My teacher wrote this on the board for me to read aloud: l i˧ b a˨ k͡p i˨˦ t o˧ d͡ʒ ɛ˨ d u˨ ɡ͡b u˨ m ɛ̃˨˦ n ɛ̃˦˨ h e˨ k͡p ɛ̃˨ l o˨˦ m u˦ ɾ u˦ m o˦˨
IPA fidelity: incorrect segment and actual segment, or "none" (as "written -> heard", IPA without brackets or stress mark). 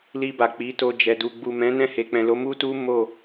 ɾ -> t